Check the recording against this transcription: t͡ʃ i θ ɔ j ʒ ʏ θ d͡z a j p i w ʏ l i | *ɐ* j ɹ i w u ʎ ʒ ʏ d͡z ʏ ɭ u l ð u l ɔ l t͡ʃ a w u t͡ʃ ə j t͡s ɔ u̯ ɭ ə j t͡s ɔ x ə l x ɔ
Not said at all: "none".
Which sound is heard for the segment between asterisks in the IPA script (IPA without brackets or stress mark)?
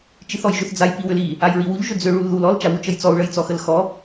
a